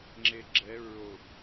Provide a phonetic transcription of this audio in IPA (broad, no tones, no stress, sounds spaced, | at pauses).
ŋ͡ǁ e ɡ͡ǁ ɛ ɹ o b